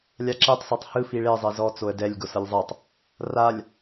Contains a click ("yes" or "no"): yes